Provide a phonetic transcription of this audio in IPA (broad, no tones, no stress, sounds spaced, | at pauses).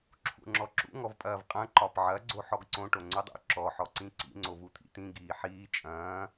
ǁʰ ṵ ŋ͡ǁ ɔ ǁ ṵ ŋ ɔ v pʼ ɐː v qʼ ɐ̃ ǃ ɒ p ʕ ɐ ɡ͡ǀ o ħ ɔ ɡ ǀ õ ʈ o ŋ͡ǀ u dˤ ṵ ǁ ɔ ħ ɔ ǀ ĩ ǀ ḭ ŋ͡ǀ o v u t̪ʰ ḭ t̪ ĩ ɡ iː ħ iː t͡ʃʼ ɐ̃ː